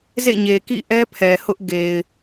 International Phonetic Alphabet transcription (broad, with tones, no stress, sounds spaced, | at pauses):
z ḛ˦˨ ɲ e˨ k ḭ˦˨ ʔ ɛ˦ pʰ ɛ˨ h ʊ˦ ʔ ɡ e˨ ɪ̯